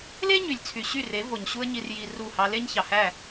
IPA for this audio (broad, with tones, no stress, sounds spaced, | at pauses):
l e˦ ɲ y˨ lʲ t͡sʰ y˨ ɕ y˦˨ r e˨˦ v o˨ ɲ ɕ u˦ ə̯ ɲ i˧ r j i˧ r u˦˨ h ɑ˦ l e˦ ɲ ç ɑ˨ h æ˦˨